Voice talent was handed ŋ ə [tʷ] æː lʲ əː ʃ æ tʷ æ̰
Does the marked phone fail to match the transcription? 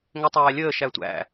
yes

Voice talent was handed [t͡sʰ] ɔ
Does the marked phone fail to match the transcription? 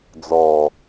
yes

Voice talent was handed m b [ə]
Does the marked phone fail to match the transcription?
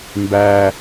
yes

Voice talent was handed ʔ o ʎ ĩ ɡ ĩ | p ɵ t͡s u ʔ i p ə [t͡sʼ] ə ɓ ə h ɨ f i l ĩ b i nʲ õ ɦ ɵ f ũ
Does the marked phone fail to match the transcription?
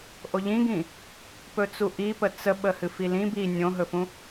yes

